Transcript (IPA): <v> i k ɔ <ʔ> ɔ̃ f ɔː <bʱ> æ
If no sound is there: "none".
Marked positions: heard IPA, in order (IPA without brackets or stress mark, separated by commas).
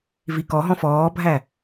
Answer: v, ɦ, bʱ